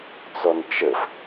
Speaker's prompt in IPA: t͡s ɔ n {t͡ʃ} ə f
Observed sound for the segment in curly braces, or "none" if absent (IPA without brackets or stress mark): t͡ʃ